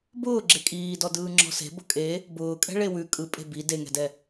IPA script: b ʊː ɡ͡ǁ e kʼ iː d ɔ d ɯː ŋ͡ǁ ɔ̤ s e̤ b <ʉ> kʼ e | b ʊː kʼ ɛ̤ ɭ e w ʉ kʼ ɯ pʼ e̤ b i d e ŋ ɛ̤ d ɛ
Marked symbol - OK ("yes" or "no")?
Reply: no